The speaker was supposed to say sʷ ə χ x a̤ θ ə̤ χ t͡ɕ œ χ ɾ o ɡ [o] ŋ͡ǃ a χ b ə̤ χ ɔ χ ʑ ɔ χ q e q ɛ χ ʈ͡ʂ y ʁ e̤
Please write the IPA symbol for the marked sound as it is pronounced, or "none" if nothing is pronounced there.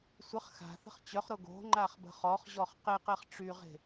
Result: o̤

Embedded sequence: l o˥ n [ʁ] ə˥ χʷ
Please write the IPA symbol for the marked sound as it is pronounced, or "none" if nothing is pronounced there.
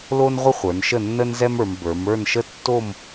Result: ʁʷ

